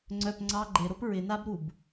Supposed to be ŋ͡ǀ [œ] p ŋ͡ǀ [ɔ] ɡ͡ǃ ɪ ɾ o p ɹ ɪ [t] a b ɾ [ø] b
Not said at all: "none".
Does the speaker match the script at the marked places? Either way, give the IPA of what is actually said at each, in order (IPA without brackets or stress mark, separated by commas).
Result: œ, ɑ, n, u